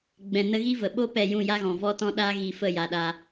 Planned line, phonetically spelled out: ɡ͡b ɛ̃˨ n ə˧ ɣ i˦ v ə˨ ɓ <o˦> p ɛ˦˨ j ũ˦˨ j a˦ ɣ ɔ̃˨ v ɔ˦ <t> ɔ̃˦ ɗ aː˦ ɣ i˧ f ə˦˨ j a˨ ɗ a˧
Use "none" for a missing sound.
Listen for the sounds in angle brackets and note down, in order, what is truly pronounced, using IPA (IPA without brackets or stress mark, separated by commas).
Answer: o˦, t